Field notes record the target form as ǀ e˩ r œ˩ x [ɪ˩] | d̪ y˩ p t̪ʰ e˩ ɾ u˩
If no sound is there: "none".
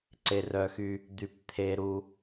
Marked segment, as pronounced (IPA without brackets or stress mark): y˩